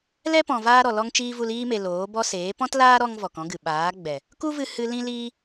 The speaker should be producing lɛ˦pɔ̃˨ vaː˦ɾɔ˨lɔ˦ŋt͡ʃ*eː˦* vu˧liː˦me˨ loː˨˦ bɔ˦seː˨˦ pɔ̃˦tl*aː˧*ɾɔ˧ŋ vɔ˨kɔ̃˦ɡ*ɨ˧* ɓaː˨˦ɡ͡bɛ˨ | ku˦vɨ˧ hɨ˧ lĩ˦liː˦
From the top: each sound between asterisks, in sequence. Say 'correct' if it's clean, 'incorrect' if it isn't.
incorrect, incorrect, incorrect

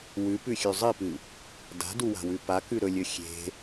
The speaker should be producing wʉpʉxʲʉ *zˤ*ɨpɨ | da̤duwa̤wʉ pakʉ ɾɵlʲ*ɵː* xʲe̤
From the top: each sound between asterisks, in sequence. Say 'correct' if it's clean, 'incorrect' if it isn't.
correct, incorrect

